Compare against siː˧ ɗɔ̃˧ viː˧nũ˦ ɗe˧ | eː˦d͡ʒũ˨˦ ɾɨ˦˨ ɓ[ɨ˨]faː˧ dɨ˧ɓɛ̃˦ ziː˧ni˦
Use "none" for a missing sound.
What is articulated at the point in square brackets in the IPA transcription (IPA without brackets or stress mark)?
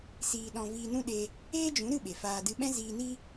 e˨